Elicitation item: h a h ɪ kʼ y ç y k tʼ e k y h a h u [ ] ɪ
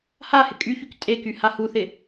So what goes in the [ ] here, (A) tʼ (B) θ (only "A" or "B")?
B